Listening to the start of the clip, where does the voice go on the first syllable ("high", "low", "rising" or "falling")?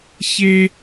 high